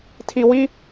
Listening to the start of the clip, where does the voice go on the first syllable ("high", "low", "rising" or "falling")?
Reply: low